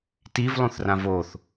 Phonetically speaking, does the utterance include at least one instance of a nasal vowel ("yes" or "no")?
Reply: yes